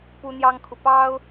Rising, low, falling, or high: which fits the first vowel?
high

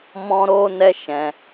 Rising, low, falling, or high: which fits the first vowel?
high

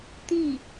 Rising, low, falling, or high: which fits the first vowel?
falling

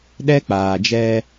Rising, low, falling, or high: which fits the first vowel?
high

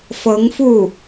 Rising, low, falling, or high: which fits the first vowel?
rising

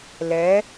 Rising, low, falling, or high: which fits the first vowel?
rising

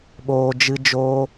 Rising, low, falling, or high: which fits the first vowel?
low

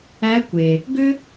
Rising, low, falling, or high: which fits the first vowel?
rising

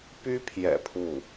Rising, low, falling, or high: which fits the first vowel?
high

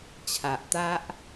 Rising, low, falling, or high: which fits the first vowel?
low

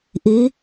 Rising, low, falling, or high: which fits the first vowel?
rising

